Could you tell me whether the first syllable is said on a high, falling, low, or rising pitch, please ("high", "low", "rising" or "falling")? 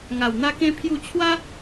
low